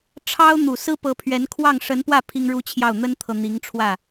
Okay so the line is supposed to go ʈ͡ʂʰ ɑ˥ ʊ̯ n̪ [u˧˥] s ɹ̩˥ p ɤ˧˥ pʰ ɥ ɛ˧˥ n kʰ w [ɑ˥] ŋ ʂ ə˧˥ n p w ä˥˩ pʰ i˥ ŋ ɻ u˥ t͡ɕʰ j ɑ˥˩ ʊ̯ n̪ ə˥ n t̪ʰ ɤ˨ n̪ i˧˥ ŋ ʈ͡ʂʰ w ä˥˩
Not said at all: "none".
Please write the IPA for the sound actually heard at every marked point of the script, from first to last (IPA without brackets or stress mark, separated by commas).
u˨˩, ɑ˥˩